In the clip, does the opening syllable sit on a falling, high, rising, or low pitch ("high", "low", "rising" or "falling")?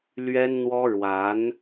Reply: high